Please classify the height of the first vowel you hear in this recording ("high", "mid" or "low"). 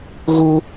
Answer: mid